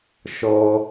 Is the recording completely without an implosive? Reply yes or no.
yes